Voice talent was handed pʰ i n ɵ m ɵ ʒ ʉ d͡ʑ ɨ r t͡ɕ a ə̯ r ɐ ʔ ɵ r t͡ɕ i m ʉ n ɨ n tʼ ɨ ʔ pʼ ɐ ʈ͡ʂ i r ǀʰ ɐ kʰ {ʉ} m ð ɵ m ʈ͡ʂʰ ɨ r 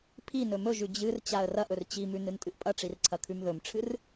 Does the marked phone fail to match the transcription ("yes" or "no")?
no